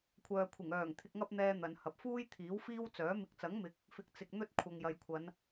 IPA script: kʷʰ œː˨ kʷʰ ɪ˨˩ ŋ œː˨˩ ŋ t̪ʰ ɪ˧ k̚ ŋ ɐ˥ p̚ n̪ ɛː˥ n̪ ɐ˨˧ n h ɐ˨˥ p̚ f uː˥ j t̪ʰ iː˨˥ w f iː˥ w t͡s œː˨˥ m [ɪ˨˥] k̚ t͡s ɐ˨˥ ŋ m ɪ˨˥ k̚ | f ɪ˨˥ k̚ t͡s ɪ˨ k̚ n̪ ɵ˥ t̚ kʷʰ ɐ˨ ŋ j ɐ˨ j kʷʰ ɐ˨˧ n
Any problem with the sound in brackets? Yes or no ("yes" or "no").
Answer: yes